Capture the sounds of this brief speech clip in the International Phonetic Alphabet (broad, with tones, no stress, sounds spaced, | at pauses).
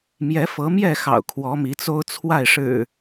m j ɛ˨˦ f ɤ˨˦ m j ɛ˥˨ x ɑ̰˨˩ ʊ̯ kʰ w ɔ˨˦ m i˨˦ t͡s o˦ ʊ̯ t͡sʰ w a˥˨ ɪ̯ ʂ ɻ̩˨˩